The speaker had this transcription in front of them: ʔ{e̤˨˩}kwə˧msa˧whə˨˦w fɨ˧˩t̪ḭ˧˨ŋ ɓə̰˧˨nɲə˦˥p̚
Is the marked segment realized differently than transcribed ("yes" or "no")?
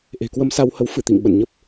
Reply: no